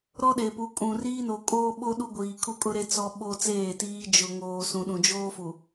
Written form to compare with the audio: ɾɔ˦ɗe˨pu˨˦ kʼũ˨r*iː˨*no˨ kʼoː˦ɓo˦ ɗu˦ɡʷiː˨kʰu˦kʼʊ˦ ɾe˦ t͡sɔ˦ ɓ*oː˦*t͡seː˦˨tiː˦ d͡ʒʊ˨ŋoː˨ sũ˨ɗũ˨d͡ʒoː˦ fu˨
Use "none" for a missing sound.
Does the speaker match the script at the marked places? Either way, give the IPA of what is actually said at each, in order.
iː˦, o˦

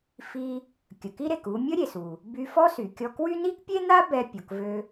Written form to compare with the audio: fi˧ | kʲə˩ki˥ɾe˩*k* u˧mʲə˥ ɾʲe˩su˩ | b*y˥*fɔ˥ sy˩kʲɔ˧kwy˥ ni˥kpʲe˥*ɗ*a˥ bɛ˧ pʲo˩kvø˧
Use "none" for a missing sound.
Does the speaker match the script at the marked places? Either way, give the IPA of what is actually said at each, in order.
k, y˧, n̪

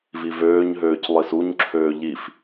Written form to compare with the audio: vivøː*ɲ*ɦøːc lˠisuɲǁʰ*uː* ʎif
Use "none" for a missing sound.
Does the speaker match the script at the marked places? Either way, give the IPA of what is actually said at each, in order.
ɲ, øː

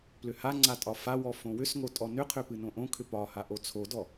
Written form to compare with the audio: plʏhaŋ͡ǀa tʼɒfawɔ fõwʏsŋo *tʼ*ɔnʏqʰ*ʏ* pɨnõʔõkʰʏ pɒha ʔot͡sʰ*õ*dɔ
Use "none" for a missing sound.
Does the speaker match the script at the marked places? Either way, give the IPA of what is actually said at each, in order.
tʼ, ʏ, o

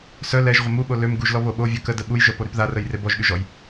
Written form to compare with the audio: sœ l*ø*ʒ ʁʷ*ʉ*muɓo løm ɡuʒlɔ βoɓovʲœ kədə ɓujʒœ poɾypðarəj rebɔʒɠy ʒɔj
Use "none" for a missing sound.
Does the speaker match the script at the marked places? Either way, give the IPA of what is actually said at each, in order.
ɛ, ə

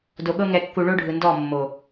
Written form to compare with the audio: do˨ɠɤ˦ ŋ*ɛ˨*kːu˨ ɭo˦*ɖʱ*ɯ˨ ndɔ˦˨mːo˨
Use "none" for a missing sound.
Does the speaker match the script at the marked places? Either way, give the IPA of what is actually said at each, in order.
ɛ˨, ɖʱ

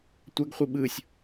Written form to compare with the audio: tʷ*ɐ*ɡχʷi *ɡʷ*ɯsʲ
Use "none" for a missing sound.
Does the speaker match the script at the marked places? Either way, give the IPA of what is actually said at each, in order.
ɐ, ɓ

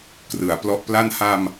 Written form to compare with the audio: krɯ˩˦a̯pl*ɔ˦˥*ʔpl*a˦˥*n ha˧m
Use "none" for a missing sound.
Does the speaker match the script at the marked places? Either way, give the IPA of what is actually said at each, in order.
ɔ˦˥, a˥˩

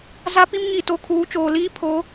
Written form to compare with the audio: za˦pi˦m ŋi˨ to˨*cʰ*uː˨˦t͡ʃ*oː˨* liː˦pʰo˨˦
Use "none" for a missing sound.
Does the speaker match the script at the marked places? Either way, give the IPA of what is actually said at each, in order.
kʰ, oː˨

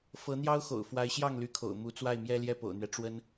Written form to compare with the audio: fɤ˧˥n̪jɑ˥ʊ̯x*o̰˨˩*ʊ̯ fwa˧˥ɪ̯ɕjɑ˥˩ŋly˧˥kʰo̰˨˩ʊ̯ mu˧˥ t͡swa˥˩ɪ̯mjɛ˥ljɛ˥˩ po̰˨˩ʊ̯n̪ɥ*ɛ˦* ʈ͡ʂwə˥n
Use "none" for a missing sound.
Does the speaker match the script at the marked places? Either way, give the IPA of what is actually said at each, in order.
o̰˨˩, ɛ˦

